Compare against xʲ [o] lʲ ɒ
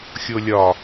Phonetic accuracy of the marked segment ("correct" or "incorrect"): correct